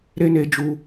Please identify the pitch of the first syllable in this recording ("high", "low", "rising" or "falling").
high